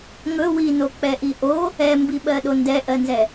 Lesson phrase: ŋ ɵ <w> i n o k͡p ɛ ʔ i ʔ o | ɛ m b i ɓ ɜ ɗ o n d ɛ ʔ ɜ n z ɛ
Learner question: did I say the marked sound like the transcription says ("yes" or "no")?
yes